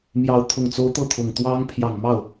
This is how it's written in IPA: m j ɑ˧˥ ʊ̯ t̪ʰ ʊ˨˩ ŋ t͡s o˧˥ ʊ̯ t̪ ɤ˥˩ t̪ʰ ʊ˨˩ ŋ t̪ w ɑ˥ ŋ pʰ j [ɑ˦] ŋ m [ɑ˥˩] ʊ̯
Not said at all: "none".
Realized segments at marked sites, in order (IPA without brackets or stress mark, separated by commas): ɑ˨˩, ɑ˥˩